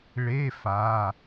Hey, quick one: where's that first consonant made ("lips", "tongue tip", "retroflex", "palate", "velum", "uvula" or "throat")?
retroflex